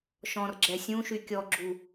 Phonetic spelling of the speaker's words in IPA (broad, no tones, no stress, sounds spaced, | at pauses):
ʃ ɔ̃ r ɡ͡ǁ ɛ sʲ ũ ʃ y kʲ ɔ ɡ͡ǁ u